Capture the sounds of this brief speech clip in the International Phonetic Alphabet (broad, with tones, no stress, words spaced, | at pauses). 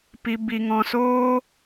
pi˨bi˨ ŋɔ̃˨soː˦